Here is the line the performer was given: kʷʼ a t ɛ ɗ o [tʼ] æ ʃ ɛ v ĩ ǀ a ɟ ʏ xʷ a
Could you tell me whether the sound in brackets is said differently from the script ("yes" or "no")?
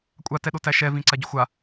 yes